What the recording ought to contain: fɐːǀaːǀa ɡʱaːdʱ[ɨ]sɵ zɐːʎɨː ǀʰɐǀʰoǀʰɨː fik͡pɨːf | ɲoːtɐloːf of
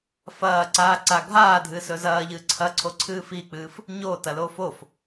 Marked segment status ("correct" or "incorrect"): correct